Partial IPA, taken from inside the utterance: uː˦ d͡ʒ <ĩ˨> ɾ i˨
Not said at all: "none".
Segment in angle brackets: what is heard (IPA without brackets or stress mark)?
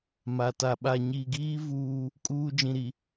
ĩ˨